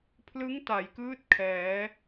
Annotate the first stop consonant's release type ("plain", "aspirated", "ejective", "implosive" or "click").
aspirated